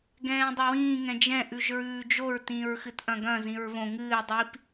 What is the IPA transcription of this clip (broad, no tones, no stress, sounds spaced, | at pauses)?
ɡ ɛ̃ː dˤ ɐ w ĩː ŋ ɛ̃ d͡ʒ ɛ̃ ʔ ʉ ʒ ɹ ʉː d͡ʒ o ɹ t ĩː ɹ x ɨ t ʔ ɐ̃ ɡ ɐ̃ z ĩ ɹ β õ ŋ ɨː dˤ i p